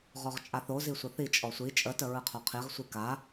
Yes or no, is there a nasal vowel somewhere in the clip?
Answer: no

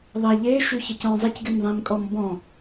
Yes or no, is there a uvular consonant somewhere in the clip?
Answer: no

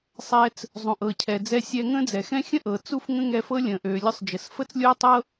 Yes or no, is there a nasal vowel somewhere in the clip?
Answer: yes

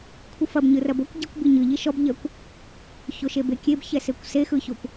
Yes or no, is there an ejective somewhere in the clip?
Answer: no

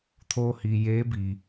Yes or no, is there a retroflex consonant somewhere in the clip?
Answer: no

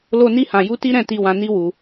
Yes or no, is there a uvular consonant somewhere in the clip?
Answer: no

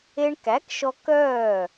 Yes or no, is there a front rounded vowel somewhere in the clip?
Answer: yes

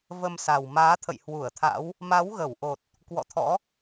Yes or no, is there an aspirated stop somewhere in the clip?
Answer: yes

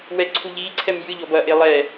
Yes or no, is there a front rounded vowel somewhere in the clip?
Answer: no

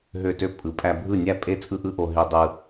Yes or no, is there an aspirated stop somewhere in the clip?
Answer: no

